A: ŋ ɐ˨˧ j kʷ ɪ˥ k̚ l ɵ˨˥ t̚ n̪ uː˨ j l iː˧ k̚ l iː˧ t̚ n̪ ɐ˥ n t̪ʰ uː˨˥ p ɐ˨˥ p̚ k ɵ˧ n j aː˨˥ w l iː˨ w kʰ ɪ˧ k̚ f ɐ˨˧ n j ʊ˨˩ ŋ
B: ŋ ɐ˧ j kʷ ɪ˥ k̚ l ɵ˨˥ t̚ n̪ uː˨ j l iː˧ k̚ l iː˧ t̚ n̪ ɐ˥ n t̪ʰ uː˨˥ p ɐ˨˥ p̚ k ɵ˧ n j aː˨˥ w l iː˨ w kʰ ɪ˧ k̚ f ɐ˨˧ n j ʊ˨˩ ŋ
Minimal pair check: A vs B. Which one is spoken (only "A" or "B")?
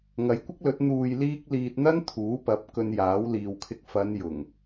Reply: A